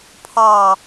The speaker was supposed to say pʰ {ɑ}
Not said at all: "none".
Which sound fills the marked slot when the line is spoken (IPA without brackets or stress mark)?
ɑ